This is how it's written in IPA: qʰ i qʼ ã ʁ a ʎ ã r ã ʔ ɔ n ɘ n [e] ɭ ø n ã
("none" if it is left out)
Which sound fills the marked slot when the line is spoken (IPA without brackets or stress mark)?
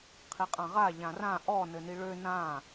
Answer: i